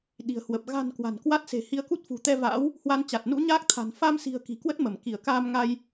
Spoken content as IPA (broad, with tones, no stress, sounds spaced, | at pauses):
ɗ i̤˨˩ ə̯ h w ə˨˩ p̚ ɣ a̤˨˩ n k w a̤˨˩ n k w a˦˥ t̚ s e̤˨˩ h i˧ ə̯ k u˦˥ t̚ f ṳ˨˩ t̪ ɛ˧ v a̰ː˧˥ w | h w a˧ n t͡ɕ a˨˩ t̚ n ṵ˧˥ ɲ aː˦˥ k̚ t̪ʰ a̤˨˩ n f a˧ m s i̤˨˩ ə̯ k i̤˨˩ k w ə˦˥ t̚ m ə˧˩ m k i˧˩ ə̯ k aː˧ m ŋ a˧ j